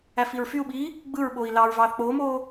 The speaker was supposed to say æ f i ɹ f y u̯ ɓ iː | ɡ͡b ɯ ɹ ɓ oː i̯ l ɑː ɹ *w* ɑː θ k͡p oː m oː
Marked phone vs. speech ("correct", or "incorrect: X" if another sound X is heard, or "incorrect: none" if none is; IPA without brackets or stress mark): incorrect: v